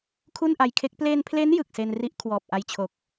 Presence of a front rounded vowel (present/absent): absent